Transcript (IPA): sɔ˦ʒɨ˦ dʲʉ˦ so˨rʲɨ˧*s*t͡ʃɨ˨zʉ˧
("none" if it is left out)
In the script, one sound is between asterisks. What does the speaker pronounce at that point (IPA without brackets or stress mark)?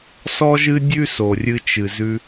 none